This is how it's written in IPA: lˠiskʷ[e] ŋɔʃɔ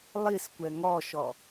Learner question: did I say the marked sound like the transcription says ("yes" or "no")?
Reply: no